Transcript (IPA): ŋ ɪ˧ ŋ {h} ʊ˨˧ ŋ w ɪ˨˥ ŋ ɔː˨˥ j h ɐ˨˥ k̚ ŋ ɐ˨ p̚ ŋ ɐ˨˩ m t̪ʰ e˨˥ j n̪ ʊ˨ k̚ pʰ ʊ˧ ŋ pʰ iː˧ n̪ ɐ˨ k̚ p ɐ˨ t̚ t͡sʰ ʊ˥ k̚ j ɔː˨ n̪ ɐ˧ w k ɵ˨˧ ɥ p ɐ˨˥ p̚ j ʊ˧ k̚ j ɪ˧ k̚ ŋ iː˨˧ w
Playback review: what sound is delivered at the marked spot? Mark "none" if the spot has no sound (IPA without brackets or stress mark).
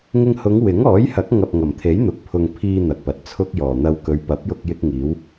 h